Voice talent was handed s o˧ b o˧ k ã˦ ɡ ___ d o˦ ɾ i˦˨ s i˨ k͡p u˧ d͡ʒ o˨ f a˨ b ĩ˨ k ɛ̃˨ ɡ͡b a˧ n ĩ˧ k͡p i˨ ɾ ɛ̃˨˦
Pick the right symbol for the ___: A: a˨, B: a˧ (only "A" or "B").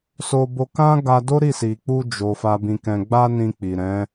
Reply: B